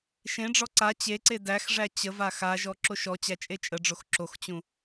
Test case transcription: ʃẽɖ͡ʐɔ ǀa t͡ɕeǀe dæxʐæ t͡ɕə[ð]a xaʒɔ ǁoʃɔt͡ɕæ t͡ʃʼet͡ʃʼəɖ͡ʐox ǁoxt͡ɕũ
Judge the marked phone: incorrect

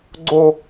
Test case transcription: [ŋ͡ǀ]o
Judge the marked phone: incorrect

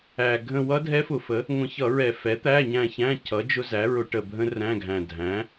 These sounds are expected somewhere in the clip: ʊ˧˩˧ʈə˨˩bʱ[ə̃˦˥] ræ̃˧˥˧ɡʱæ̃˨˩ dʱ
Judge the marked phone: correct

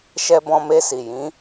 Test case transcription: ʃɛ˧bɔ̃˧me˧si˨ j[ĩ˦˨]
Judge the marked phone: incorrect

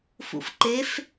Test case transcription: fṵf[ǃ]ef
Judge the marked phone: correct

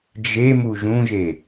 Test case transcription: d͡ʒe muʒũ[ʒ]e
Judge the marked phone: correct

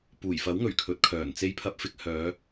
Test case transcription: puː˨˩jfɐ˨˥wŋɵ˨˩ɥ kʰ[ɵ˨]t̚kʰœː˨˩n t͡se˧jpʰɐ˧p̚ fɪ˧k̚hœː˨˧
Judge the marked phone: incorrect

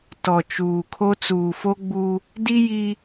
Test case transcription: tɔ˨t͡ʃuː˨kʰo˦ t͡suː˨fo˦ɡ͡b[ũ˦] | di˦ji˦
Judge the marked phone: incorrect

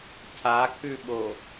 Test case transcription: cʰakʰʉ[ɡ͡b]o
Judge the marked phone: incorrect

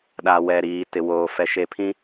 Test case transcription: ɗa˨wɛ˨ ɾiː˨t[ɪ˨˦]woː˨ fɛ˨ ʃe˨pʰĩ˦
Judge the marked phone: incorrect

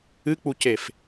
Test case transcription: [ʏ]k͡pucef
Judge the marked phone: incorrect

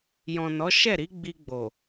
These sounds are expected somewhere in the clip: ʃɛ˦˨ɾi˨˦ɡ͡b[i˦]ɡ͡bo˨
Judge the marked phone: incorrect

